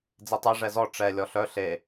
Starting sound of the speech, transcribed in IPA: d͡z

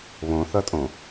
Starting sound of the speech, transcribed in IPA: β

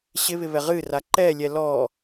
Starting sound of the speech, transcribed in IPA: ɕ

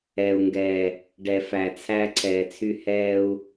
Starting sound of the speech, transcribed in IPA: ɛː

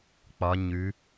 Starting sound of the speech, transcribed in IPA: k͡p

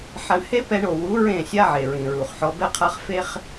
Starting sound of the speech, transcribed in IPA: ħ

